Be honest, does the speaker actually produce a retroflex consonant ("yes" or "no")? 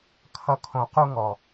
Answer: no